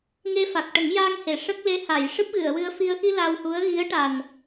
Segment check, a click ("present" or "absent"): absent